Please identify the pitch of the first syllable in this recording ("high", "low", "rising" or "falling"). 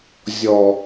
low